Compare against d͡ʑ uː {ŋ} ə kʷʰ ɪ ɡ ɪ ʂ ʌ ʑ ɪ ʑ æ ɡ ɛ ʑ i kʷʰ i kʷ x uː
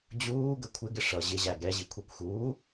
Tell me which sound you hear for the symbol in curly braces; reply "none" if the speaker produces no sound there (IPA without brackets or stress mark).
ɡ